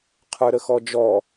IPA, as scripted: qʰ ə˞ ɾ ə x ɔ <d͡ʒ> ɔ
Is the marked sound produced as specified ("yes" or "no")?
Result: yes